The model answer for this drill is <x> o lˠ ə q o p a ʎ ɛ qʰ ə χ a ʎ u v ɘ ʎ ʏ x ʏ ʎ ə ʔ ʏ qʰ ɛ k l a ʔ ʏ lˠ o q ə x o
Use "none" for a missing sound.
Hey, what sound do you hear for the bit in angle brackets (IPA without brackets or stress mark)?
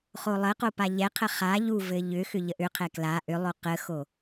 χ